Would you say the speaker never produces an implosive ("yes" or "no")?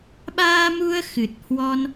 no